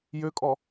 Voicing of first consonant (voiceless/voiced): voiced